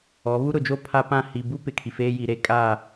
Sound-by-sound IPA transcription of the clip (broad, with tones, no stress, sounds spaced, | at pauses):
ɔ˨˦ β u˦ ɾ ʊ˨ d͡ʒ o˦ pʰ a˦ p ã˦˨ h i˨ b u˦ p ɪ˨ kʰ i˨ f eː˦ j i˨ ɾ eː˦ kʼ aː˦˨